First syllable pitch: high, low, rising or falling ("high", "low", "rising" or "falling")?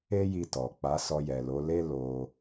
high